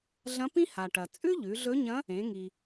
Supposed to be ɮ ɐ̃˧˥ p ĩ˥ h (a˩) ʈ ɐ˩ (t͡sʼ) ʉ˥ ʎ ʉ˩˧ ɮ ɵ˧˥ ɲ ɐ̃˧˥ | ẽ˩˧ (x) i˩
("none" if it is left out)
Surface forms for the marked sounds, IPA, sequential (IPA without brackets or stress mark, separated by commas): a˩, t͡sʼ, ŋ